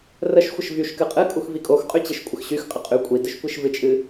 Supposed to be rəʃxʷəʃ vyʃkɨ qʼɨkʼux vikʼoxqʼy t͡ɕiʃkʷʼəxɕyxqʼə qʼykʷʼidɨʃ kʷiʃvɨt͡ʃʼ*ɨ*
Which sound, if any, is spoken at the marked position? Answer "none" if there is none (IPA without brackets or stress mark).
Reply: ɨ